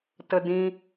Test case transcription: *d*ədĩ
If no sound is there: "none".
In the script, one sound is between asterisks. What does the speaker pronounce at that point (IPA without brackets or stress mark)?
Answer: t